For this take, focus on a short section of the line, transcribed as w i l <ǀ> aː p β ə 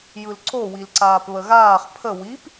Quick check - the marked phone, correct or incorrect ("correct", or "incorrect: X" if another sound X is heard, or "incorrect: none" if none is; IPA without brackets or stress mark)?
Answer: correct